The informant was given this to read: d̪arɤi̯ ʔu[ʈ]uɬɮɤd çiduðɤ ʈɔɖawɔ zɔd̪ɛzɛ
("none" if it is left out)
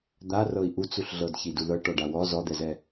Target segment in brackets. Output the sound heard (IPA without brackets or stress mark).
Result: t͡s